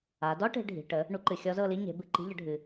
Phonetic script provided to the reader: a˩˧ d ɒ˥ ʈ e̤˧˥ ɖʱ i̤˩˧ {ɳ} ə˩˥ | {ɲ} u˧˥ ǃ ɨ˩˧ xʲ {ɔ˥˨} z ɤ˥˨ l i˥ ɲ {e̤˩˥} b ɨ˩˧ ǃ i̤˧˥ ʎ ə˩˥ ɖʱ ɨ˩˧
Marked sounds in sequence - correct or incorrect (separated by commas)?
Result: incorrect, incorrect, incorrect, correct